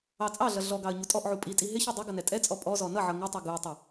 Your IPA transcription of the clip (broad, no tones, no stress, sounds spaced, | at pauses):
ɑ t͡sʼ ɑ ɮ ʌ ɮ ɔ ɡ ɑ ə̯ ɲ u tʼ ɔ ʔ ʕ u pʼ i tʼ i ɦ ɪ ç u dˤ ɪ ɡ ʌ n ɛ tʼ ɛ t͡sʼ ɔ pʼ ɔ z ɔ n ʌ ʕ ʌ ŋ ɪ tˤ ɛ ɡ u ə̯ tˤ ɛ